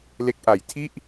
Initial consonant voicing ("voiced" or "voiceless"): voiced